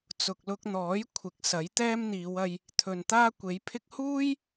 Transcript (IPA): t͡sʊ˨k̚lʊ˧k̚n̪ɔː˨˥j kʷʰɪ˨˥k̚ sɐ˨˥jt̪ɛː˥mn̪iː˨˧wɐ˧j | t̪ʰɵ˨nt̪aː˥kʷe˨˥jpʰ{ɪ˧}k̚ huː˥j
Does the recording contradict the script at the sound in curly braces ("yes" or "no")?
yes